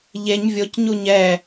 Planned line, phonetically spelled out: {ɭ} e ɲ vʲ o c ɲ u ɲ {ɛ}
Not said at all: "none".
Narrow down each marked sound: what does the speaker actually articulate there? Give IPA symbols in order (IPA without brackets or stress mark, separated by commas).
ʎ, ɛ